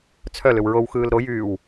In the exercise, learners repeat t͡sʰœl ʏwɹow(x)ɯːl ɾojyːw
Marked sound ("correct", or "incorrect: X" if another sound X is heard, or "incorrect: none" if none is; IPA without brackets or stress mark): correct